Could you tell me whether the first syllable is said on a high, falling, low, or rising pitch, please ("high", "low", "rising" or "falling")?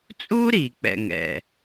high